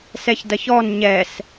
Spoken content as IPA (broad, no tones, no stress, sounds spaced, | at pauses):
s ɛ ç d ɐ ç ɔ n ɲ ɛ s